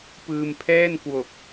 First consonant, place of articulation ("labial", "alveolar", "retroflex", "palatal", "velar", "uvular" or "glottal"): labial